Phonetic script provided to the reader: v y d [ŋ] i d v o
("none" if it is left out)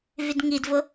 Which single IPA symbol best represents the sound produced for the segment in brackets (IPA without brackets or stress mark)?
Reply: ŋ